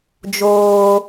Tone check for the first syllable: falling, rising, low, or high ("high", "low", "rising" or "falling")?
high